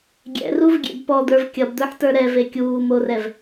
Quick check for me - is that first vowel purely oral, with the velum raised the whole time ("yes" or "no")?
yes